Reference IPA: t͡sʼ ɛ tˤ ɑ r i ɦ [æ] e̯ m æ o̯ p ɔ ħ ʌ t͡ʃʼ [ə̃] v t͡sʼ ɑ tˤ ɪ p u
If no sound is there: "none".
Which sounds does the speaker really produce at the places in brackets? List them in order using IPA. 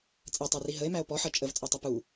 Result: ə, ə

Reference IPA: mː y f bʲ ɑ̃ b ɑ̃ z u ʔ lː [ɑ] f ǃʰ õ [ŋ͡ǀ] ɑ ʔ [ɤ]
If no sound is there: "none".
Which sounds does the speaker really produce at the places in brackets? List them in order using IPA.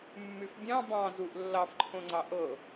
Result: ɑ, ŋ͡ǀ, ɤ

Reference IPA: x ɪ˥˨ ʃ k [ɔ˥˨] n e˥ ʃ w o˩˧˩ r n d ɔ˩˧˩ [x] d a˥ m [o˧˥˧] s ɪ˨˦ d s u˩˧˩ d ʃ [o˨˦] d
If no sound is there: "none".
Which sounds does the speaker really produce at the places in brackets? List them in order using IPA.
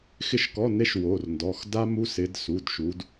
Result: ɔ˧˥˧, x, u˧˥˧, u˨˦

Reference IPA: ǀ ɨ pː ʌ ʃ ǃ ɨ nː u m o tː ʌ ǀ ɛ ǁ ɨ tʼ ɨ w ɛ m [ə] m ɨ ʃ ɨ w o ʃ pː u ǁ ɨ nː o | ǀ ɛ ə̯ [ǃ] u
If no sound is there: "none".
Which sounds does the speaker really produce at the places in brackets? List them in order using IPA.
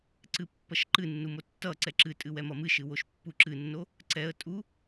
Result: ʌ, tʼ

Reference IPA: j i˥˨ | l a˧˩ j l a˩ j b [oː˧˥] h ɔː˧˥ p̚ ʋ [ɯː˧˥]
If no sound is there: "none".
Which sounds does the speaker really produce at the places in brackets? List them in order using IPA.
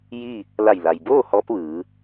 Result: oː˥˨, ɯː˩˧

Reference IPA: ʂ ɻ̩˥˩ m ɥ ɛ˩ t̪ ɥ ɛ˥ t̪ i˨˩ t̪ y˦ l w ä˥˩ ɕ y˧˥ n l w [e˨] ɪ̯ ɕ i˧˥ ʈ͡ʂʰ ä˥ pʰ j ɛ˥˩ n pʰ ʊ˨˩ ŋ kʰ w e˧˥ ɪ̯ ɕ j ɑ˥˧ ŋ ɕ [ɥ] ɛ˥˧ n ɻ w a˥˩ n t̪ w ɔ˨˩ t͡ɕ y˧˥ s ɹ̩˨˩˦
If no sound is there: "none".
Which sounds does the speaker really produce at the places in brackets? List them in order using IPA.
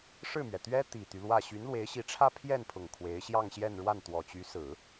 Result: e˧˥, j

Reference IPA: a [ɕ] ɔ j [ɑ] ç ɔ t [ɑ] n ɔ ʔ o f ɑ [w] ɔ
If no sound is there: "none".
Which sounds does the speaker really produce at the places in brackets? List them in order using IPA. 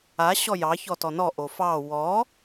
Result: ɕ, ɑ, ɔ, w

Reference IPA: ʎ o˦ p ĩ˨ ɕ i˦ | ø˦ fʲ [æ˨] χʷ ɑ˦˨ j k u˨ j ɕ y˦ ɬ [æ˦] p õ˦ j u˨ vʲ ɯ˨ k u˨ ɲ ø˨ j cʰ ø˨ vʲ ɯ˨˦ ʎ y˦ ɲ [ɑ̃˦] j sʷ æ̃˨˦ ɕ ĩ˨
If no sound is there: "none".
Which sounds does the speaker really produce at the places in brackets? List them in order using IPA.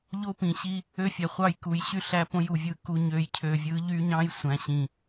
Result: æ˨, æ˦, ɑ̃˦

